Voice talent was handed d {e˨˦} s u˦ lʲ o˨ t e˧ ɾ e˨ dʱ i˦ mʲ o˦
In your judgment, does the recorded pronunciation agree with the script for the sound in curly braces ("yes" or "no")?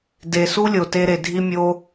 no